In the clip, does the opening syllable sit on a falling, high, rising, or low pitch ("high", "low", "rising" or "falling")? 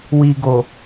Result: low